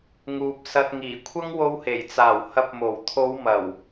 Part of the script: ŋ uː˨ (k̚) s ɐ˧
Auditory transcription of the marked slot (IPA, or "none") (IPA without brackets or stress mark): p̚